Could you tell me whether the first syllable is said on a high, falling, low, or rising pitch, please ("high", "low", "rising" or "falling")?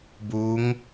rising